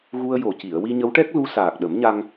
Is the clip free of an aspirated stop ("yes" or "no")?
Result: yes